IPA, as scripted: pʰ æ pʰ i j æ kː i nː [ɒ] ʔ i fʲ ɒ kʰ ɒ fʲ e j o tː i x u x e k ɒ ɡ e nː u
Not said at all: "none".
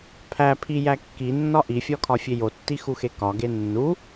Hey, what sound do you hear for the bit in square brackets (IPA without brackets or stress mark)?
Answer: ɒ